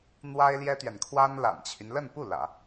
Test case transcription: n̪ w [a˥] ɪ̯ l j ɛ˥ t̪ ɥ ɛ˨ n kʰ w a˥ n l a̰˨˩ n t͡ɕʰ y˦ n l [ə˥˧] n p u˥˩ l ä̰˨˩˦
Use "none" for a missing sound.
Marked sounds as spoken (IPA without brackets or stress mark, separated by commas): a˥, ə˥˧